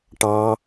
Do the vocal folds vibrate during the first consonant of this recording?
no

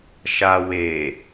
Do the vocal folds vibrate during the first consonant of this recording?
no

